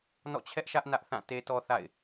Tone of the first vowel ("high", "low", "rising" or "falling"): falling